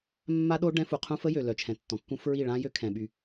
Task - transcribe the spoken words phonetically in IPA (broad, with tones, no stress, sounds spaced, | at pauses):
mː a˦ ɗ o˦ ɖ ɛ̃˦ f u˨ qʰ ũ˦ f ə˦ j ø˨ l œ˨ t͡ʃʰ ɛ̃˨ tː ɔ̃˨ kː ũ˦ f ɹ i˦˨ ɭ ã˦ j ø˦ kʰ ɛ̃˨ ɓ y˦